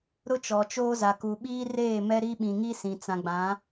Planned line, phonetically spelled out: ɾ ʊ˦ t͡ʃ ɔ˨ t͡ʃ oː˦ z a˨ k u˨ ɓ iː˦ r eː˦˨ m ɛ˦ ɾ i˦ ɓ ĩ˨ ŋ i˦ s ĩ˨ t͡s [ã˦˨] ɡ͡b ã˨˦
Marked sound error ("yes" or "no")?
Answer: yes